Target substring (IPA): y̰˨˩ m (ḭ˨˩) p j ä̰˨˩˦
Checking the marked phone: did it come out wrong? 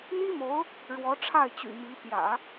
yes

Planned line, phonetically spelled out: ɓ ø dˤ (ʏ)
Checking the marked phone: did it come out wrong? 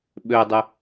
no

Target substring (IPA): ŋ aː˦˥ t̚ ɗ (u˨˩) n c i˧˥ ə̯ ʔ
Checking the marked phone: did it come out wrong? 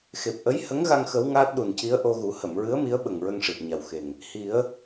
no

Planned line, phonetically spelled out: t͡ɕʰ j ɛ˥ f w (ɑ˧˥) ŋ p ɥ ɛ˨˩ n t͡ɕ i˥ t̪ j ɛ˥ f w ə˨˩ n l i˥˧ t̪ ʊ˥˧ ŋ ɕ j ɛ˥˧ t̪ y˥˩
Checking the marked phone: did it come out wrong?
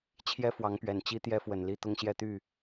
no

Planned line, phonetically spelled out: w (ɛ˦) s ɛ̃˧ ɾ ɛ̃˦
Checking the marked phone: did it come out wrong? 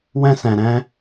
yes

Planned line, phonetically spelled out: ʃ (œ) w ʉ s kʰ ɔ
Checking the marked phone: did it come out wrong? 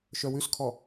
no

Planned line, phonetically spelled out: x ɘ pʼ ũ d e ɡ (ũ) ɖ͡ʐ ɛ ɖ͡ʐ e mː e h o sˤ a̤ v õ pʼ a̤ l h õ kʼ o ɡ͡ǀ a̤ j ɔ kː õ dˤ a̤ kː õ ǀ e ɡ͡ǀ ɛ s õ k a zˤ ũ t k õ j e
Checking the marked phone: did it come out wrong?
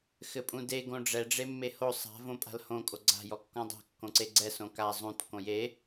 yes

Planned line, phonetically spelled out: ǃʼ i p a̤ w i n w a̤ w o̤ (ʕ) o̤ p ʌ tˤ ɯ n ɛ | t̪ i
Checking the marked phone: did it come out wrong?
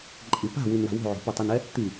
no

